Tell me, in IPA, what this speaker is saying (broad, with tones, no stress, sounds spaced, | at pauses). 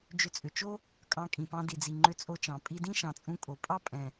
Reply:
d͡ʒ ʏ˧ t͡sʼ ʏ˨ t͡ʃ o˦ | kʼ ɑ̃˧ kʼ ĩ˨ p ɑ̃˧ d i˨ d͡z i˨ ŋ͡ǃ ʏ˧ t͡sʼ o˧ t͡ʃ ɑ̃˨ pʼ i˧ d ĩ˦ ʃ ɑ̃˨ t͡sʼ ũ˧ kʼ o˨ pʼ ɑ˦ pʼ ɛ̃˨